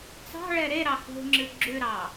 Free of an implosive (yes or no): yes